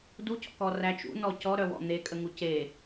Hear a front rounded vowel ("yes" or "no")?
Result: yes